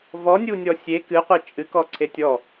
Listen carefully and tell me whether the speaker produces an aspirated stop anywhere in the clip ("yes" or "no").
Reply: yes